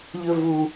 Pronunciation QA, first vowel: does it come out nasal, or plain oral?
oral